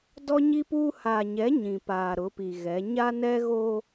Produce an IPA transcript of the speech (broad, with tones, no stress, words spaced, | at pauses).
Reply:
dɔ˦ɲi˦puː˦ haː˨ɲɛ˨˦ ɲĩ˨paː˨ ɾʊ˨˦pi˨ɣɛ˨˦ ɲa˦nɛ˦ɣoː˦